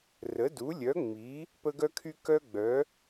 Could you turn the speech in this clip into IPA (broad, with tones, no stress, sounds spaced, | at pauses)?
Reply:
r ə˨˦ d u˨˦ lʲ œ˨˦ ŋ͡m i˨˦ | p ə˦ ɡ œ˦ kʰ y˦ k œ˦ ɡ͡b œ˨˦